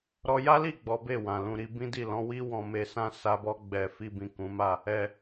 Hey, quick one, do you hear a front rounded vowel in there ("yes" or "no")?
no